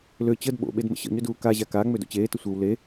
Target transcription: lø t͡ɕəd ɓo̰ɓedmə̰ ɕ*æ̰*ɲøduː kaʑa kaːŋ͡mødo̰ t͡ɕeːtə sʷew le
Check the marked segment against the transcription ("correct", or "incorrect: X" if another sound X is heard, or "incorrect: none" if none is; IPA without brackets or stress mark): incorrect: ə̰